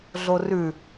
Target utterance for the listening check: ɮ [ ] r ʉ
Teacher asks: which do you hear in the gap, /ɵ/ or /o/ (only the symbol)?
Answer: o